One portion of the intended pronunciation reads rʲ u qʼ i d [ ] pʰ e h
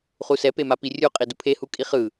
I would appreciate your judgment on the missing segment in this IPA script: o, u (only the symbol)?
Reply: u